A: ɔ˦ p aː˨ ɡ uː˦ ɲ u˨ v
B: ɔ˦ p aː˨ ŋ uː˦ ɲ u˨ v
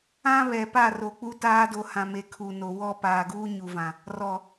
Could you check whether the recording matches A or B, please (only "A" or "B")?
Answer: A